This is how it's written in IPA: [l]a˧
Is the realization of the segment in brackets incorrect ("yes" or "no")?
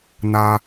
yes